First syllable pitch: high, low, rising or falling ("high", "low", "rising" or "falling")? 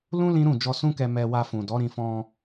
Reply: high